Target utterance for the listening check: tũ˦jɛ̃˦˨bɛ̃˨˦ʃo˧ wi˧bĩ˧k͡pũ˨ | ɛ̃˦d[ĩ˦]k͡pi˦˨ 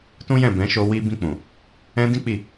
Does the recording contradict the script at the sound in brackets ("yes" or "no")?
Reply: no